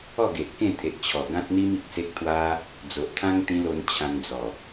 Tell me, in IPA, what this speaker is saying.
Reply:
ɔ˥˧ ɡ e˨ ʔ k ẽ˥˧ t̪ʰ e˨ ʔ t͡ɕʰ ɔ˨˩ ɡ ã˦ t̚ n̪ i˦ m i˨ k̚ s e˦ k̚ t̪ʰ w a˦ | d͡z o˨ ʔ t̪ʰ ã˦ ŋ t̪ ĩ˧ l o˧ n t͡ɕʰ ã˧ n d͡z ɔ˨˩

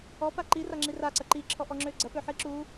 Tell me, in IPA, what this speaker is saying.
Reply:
ɔ p a ǃ i r a ŋ͡ǁ i r a ǀ ɐ ǃ i ǁʰ ɔ ʔ ɔ ŋ͡ǁ ø ɡ͡ǀ ɐ p ø ħ i ǁ u

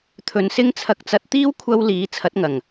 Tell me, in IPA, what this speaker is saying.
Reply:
t̪ʰ ɵ˨˧ n s ɪ˥ ŋ t͡sʰ ɐ˧ k̚ t͡s ɐ˧ t̚ t̪ iː˥ w kʷʰ ɐ˥ w l iː˨˥ t͡sʰ ɐ˨˥ t̚ ŋ ɐ˨˩ ŋ

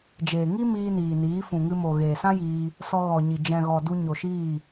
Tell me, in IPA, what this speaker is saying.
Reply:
d͡ʒ eː˨ ŋ i˦ m iː˧ n iː˨ n iː˨˦ f ũ˨ ŋ ɨ˧ m o˨ ɣ eː˨ s ã˦ j iː˧ | s ɔ˧ ɣ ɔ˨ ɲ i˨ d͡ʒ ɛ̃˨ ɣ ɔ˨ d u˧ ɲ o˨ ʃ iː˦˨

